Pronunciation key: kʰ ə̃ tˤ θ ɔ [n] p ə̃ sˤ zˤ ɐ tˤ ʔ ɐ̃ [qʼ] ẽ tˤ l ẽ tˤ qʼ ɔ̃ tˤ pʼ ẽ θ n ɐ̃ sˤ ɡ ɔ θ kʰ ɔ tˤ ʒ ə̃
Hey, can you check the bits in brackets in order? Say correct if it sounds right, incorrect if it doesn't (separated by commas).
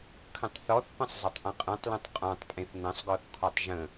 incorrect, correct